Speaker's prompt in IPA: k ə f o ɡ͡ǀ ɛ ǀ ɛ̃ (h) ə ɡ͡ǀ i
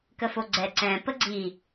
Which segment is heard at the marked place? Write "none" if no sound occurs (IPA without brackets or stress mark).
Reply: p